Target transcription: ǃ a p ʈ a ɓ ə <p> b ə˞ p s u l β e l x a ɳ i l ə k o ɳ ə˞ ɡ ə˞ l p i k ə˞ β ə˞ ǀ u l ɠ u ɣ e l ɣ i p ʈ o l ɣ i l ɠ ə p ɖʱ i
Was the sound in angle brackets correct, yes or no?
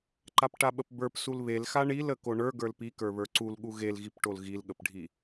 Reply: yes